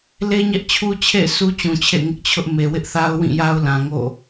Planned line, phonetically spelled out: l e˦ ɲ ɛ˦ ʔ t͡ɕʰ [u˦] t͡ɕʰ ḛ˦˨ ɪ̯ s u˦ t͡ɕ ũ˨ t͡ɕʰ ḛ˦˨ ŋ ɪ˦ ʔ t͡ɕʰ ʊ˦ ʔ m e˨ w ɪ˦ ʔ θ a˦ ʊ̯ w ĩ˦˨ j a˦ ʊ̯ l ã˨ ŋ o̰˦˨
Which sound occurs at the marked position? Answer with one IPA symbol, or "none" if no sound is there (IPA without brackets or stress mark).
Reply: u˦